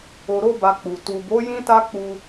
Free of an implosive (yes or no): yes